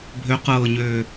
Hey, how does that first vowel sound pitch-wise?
rising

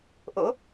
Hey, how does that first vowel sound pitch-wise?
rising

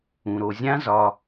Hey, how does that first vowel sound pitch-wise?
low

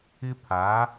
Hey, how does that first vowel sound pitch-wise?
high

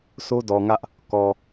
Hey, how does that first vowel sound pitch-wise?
high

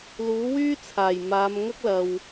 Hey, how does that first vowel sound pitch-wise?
rising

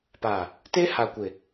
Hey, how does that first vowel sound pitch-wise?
low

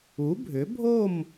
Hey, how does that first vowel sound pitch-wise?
rising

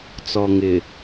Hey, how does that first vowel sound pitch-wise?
low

